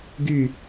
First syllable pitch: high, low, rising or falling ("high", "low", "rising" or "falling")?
falling